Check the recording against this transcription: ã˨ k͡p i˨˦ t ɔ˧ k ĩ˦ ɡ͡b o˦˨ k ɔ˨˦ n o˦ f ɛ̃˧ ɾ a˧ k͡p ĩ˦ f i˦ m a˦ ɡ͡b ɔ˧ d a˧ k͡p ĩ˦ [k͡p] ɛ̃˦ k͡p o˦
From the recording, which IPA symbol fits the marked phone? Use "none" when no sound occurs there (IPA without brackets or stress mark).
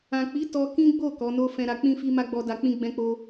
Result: ɡ͡b